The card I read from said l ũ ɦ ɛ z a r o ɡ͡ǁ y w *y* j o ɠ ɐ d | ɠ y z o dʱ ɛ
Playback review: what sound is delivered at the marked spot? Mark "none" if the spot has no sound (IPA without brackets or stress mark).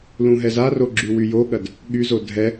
y